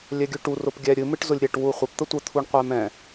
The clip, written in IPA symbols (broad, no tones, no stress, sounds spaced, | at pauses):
lʲ ɛ ɡʲ ʉ ʈ u r ʊ p ɡʲ ɛ ɾʲ ɨ m ɨ ʈ z ʊ lʲ ɾʲ ɛ ʈ w u χʷ ɪ p t̪ ə tʷ ə t̪ʰ u ɳ qʷ ɛ m ɛ̃